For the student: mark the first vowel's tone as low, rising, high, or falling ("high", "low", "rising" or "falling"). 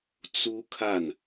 high